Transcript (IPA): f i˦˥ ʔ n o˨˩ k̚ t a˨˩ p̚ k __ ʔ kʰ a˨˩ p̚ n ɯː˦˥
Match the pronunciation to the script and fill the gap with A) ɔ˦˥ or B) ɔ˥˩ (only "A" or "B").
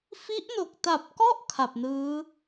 B